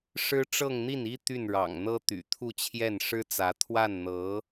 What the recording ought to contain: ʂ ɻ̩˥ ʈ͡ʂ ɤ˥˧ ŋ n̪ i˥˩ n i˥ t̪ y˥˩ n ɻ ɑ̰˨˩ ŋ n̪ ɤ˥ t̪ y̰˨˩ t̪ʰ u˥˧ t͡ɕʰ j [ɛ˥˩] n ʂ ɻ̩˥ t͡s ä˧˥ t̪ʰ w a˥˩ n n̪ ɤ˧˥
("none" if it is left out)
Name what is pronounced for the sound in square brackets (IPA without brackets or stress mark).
ɛ˥˩